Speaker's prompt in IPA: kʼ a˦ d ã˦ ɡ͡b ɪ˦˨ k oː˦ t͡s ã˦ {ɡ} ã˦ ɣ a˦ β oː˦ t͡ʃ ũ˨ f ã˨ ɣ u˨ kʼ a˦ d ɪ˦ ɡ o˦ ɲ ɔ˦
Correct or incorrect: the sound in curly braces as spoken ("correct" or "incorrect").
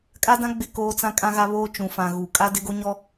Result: incorrect